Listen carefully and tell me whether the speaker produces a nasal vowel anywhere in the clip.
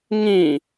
yes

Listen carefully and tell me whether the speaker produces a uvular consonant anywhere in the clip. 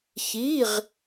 yes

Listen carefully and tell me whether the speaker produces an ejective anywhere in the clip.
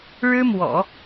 no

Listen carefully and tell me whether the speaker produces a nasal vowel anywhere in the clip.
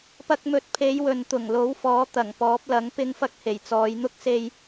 no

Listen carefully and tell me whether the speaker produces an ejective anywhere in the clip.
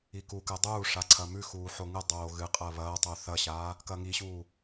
yes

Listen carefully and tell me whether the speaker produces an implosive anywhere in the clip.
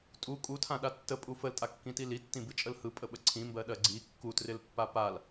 yes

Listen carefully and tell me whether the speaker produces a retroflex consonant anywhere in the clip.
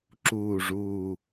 yes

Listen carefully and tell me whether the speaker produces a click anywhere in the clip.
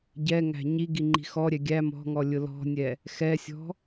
yes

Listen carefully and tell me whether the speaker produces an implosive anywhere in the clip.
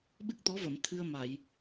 yes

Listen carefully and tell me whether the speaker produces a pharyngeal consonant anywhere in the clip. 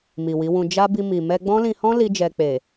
no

